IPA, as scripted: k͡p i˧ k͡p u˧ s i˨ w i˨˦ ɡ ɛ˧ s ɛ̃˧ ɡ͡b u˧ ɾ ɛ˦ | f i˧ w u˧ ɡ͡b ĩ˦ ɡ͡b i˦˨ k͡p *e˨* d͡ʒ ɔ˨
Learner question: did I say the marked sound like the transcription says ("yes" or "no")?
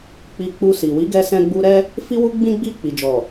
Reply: no